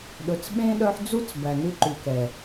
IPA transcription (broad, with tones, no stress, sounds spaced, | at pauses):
ɗ ɵ˨ t͡s ɓ ẽ˥ ɗ œ˦ ħ d͡z u˥ t͡s b æ˨ n ʉ˦ ǃ ʉ˨ k ɛ˩